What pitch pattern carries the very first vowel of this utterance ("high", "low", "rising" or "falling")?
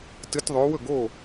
rising